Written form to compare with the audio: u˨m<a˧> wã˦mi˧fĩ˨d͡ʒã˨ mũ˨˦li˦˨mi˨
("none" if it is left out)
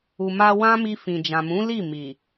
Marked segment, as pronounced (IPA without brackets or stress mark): a˧